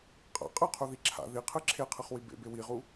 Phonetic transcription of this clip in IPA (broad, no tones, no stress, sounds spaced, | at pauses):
qʼ a̰ qʼ ɯ qʰ o ð i ǁʰ a̰ ð i qʰ ɯ ǁʰ e qʰ ɯ χ w i b ḛ b e w i ʁ u